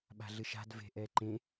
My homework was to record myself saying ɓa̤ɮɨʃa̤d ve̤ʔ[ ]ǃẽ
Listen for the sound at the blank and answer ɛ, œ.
ɛ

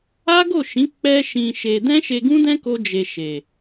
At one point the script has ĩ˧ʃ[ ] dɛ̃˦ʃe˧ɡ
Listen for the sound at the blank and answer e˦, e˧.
e˧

